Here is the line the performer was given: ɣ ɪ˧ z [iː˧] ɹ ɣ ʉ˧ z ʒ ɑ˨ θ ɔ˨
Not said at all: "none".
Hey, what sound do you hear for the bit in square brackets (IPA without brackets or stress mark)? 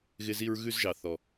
i˧